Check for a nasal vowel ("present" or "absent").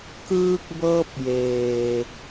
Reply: absent